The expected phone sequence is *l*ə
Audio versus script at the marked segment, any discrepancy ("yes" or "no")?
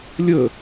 yes